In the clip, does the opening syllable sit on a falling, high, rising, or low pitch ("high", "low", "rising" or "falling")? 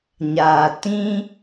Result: low